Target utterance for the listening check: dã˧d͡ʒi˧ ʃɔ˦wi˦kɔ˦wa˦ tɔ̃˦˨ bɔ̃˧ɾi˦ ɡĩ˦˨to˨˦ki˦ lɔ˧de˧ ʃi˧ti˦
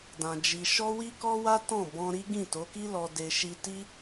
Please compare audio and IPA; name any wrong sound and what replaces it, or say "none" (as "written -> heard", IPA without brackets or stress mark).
none